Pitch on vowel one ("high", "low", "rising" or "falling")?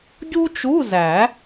high